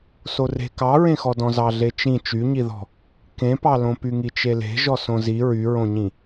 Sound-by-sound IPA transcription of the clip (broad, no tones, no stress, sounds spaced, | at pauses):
s o r e̤ k ɑ ɹ ẽ x ɔ d ɔ̃ z ɑ ɮ e t͡ʃ ĩ t͡ʃ y ɲ i ð ɔ̤ | k ẽ p ɑ l õ p y ŋ i t͡ʃ e l e̤ ʒ ɔ s õ z i ɹ y ɹ õ ɲ ĩ